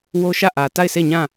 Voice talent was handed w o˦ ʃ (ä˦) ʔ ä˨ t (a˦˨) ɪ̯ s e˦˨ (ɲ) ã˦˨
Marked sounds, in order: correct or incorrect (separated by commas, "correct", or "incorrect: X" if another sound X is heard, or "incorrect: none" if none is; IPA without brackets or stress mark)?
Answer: incorrect: ä˦˨, correct, correct